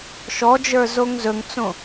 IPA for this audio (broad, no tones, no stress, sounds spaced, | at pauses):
ʃ ɔ d͡ʒ ə˞ z o ŋ z ɵ ŋ t͡s õ